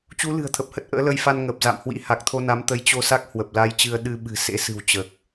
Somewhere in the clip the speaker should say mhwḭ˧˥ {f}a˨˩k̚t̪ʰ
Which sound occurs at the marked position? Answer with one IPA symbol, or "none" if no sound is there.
h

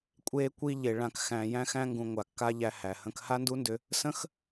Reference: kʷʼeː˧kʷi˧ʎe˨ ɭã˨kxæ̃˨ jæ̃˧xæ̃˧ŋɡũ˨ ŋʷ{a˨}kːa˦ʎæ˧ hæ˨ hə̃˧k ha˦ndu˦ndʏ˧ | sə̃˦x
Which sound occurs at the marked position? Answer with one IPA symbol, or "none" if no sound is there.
a˨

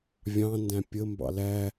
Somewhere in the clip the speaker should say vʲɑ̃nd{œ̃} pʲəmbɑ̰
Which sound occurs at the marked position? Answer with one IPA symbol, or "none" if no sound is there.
æ̃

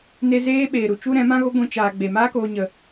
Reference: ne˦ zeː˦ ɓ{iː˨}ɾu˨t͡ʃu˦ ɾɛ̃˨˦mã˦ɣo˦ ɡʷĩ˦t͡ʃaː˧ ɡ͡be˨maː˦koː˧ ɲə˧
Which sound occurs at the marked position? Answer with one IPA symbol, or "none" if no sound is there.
eː˨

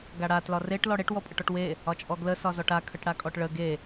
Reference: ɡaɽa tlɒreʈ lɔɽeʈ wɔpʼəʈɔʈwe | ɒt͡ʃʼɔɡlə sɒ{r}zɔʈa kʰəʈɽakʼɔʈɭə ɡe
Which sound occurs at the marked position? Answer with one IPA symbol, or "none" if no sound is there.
none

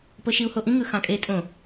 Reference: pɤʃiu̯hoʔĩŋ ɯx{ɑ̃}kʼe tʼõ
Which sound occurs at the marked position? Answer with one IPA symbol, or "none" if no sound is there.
ɑ̃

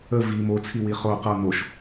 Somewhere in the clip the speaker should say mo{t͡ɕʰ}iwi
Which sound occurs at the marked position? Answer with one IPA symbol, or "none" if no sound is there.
t͡sʰ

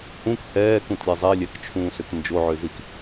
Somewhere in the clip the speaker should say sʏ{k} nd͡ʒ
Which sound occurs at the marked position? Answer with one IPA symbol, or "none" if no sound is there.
k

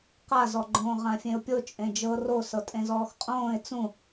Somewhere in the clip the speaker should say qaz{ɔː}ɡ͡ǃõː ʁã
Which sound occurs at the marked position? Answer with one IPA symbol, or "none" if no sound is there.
ɔ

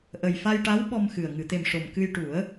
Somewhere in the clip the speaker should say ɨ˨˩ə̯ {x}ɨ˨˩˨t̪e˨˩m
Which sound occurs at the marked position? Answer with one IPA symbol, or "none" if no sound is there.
ŋ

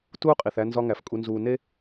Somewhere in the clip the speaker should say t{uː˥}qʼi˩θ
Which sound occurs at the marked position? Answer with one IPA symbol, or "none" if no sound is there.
uː˥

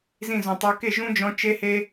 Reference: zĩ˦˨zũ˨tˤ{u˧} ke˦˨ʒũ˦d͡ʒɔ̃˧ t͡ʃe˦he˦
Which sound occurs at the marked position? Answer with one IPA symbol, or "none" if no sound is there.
u˧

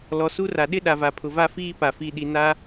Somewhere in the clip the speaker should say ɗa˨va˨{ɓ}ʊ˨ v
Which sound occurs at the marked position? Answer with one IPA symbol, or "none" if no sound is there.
pʰ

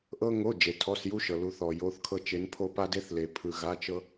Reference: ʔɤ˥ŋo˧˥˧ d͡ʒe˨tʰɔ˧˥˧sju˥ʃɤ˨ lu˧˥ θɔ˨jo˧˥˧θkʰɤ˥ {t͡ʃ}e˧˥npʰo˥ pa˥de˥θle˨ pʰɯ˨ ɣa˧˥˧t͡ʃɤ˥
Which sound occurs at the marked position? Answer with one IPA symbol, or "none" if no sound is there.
t͡ʃ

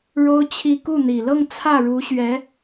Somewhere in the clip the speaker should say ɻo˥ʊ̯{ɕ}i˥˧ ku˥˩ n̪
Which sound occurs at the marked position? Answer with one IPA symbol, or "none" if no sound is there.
t͡ɕʰ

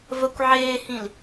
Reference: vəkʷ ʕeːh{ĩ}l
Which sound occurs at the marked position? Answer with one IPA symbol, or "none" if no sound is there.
ĩ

